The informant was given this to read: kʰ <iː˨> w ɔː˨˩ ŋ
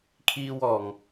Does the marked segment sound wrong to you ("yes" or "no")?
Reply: no